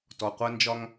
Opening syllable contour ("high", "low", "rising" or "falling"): low